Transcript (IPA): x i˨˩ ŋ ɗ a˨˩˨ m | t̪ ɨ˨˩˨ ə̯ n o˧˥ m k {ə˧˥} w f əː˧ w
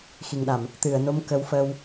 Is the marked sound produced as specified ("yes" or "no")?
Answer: yes